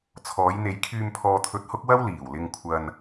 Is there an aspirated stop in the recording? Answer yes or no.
yes